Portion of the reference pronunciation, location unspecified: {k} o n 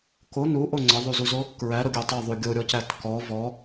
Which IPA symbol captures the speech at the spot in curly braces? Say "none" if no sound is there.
k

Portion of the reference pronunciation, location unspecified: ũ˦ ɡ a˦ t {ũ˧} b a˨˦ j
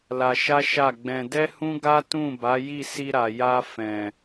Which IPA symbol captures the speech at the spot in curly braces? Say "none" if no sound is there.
ũ˦˨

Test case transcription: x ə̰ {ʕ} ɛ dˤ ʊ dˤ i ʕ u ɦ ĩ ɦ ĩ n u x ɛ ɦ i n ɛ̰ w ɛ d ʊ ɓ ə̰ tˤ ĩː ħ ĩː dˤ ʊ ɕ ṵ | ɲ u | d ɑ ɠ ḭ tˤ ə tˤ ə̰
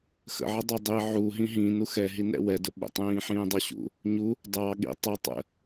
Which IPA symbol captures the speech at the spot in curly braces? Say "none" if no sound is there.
ʕ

